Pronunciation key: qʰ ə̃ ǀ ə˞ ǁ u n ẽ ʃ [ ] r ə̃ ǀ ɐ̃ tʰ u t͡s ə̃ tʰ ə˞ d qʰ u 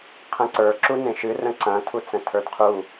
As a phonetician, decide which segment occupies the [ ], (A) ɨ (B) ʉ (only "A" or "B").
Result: A